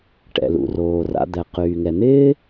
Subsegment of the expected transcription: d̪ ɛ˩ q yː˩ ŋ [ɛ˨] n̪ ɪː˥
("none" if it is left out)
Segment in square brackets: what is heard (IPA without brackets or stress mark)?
ɛ˩